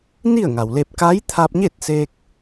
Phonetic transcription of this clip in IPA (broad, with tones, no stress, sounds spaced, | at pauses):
n i˥˨ ə̯ ŋ a˩ w l e˧ p̚ k a˧˥ j t̪ʰ a˧ p̚ ɲ e˥˨ t̚ s eː˧ k̚